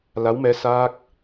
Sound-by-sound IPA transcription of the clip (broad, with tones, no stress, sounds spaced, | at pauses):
l a˧˥ w m ɛ˧˥ s a˦˥ k̚